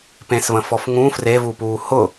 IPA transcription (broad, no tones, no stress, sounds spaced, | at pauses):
p ẽ s v ə̃ f ɔ f ŋ ũ f r e v u p uː h ʊ